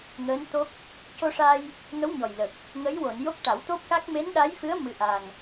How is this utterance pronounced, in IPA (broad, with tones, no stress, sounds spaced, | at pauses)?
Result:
ŋ əː˧˥ n t̪ o˦˥ k̚ | c o˧ ʂ a˧ j | ŋ ə˧˥ w ɲ ɔ˨˩ j l ə˨˩ k̚ | ŋ ə˧˥ j w o˨˩˨ n j o˦˥ k̚ ʈ a˨˩˦ w t̪ o˦˥ p̚ k a˦˥ k̚ m e˧˥ n ɗ a˧˥ j f ɨ˧˥ ə̯ m ɨ˧˥ ʔ a˨˩ ŋ